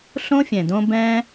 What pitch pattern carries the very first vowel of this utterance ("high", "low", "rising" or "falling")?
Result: high